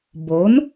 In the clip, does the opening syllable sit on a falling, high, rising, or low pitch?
rising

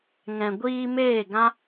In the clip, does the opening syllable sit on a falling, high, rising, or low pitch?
low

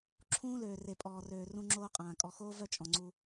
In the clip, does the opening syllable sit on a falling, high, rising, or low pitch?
high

